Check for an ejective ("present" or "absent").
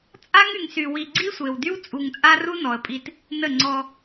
present